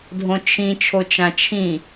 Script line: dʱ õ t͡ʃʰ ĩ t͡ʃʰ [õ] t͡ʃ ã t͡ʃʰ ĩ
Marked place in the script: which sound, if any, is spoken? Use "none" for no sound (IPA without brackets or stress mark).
o